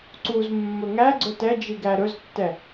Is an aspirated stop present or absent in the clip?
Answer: absent